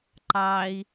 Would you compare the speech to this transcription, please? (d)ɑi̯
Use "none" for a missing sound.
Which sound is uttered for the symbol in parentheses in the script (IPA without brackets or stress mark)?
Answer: ǃ